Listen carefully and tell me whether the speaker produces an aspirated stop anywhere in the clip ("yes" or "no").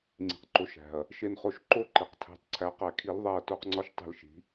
yes